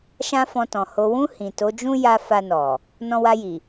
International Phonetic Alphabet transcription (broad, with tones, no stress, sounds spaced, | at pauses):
ʃ ã˦ f ɔ̃˧ t ɔ̃˨ h o˨ w ũ˧ h ĩ˨ t o˨˦ d͡ʒ ũ˦ j a˧ f a˧ n ɔ˨ | n ɔ̃˧ w a˧ j i˨